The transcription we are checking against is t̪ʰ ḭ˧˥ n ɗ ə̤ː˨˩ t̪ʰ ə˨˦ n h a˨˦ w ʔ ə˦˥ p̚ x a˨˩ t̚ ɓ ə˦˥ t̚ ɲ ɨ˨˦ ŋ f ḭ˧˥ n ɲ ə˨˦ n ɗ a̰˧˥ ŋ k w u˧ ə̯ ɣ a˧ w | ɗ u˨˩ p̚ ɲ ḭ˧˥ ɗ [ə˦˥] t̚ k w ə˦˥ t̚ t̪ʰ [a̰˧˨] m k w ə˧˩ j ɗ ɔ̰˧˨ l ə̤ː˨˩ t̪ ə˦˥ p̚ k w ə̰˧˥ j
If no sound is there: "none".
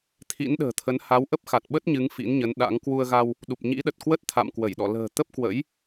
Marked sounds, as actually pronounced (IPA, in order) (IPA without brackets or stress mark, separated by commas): ə˨˩, a̰˧˨